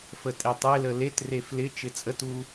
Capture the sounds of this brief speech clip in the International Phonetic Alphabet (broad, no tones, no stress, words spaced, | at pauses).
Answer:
fətʼetˤelə letre flɪ t͡ʃɪt͡sʼətu